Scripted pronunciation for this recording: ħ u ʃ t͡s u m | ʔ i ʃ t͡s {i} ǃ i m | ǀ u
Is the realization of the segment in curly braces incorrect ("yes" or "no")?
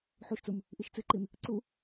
yes